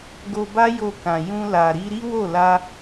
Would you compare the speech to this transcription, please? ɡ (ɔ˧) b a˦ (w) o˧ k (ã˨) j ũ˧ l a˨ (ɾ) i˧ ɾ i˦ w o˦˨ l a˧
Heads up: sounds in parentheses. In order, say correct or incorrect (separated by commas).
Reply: incorrect, incorrect, correct, correct